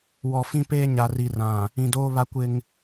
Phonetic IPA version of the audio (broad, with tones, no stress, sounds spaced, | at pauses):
w ɔ˨ f ĩ˦ p eː˦ ɲ a˨ r i˨ r ã˨ | ĩ˨ d oː˦ β a˦ kʷ ɪ˦ ŋ